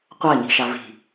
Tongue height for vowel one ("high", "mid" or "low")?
low